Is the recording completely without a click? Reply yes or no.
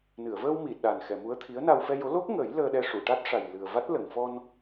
yes